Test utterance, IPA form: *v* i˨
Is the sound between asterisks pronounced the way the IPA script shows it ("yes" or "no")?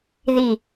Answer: no